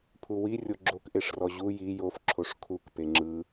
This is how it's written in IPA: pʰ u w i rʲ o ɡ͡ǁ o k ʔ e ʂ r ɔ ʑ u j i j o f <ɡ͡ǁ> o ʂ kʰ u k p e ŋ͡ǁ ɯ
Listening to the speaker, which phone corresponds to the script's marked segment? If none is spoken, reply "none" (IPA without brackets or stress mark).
ǁʰ